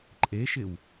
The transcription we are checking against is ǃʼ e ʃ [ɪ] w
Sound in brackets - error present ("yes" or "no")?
no